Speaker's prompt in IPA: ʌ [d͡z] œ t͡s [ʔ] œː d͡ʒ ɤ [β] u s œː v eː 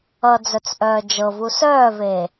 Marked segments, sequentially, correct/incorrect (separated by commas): correct, correct, incorrect